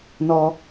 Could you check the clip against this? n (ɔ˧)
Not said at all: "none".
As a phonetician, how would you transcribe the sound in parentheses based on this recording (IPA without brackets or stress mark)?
ɔ˧